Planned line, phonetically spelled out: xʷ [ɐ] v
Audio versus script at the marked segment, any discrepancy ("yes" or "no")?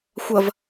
no